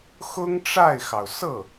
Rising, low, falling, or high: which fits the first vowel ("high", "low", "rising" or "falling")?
high